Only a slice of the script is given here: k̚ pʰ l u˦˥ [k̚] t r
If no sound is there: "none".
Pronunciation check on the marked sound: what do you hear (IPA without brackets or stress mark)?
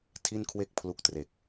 k̚